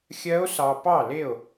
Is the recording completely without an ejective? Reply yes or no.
yes